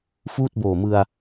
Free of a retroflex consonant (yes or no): yes